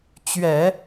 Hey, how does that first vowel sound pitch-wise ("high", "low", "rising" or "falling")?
low